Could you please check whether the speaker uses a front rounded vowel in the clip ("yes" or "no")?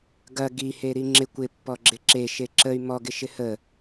yes